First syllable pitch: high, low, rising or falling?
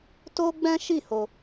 high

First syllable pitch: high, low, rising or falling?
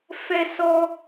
high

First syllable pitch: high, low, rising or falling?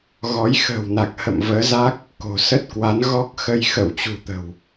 rising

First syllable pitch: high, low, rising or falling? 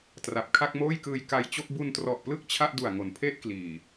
low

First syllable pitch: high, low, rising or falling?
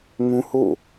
high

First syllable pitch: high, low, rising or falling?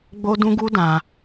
high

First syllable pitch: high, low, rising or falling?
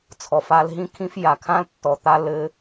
low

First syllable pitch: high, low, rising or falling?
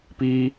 high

